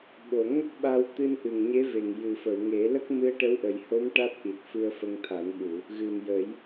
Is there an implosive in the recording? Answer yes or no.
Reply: yes